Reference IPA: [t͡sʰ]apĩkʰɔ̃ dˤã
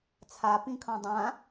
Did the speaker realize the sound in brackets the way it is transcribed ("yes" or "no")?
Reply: yes